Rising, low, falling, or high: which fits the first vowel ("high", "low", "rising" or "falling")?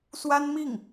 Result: high